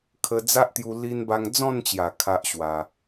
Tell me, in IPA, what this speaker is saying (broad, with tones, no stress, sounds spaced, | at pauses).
kʰ ə˧ d͡z a˦ ʔ t̪ j u˧ l i˧ n b a˧ ŋ d͡z ɔ̃˥˧ n t͡ɕ j a˨˩ kʰ a˦ ʔ ɕ w a˧